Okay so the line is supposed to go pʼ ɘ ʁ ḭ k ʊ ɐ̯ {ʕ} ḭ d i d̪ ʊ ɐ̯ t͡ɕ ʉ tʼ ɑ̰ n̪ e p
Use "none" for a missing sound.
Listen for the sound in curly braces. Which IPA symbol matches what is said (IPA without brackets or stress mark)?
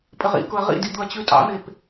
ʁ